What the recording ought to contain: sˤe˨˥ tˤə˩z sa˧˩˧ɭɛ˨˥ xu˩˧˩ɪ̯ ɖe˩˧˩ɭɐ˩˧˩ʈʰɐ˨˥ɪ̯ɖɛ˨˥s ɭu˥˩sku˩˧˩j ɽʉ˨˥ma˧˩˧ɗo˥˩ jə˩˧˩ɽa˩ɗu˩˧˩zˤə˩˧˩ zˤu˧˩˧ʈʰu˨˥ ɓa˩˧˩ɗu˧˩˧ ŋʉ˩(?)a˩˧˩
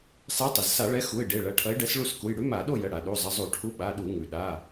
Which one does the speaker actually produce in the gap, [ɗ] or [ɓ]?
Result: ɗ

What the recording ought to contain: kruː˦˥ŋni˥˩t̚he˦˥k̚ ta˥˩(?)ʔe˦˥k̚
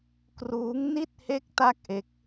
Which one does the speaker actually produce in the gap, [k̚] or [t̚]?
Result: k̚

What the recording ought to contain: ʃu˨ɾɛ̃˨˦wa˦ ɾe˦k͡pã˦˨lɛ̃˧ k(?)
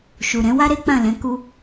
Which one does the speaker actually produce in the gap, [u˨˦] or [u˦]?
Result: u˦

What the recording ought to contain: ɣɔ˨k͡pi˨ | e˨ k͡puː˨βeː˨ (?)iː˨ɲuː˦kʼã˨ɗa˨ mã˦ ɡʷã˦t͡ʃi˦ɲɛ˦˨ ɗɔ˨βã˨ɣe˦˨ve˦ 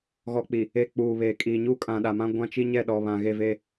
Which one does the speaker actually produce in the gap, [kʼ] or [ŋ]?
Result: kʼ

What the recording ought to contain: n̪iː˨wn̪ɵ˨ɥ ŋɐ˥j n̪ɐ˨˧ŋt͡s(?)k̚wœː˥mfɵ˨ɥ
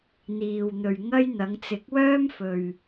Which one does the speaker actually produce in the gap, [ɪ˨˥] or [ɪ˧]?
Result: ɪ˨˥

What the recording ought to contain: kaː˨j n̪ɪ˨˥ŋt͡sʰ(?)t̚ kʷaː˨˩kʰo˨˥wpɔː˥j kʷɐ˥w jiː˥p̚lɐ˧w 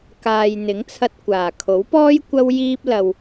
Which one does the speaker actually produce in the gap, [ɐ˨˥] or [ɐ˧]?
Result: ɐ˧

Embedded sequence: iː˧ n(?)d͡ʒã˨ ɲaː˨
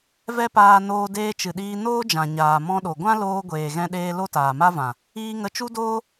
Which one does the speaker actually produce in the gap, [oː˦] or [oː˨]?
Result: oː˦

